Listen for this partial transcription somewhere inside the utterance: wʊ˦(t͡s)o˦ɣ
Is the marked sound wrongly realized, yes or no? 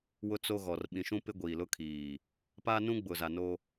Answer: no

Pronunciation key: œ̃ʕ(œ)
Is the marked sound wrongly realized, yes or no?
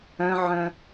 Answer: yes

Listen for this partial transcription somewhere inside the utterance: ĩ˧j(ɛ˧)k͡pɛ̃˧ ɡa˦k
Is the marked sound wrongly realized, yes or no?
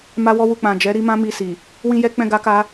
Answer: no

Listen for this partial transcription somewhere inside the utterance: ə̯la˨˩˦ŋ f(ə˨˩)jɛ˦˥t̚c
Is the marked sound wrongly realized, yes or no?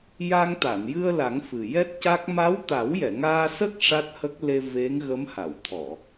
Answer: yes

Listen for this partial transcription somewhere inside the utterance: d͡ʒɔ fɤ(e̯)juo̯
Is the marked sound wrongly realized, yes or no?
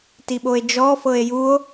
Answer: no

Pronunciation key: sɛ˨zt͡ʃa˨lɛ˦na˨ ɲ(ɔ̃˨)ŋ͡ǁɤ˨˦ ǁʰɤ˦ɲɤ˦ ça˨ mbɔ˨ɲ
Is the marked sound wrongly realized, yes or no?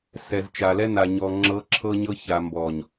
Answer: yes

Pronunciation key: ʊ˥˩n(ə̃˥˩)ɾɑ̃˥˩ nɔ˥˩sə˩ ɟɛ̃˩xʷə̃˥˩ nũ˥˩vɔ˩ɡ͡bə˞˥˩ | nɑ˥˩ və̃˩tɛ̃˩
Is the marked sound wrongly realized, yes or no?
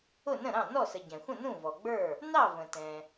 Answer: no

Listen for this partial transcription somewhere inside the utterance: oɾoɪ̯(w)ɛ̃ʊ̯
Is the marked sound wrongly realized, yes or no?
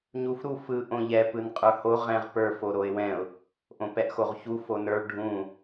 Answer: no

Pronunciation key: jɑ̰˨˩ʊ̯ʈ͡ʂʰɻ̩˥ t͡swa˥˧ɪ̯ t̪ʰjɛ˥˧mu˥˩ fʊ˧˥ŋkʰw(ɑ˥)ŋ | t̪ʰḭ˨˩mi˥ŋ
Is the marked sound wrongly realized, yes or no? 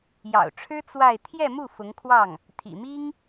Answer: yes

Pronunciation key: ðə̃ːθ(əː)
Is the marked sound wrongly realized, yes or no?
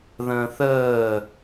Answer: no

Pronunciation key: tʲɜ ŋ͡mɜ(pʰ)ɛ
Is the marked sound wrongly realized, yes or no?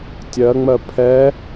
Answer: no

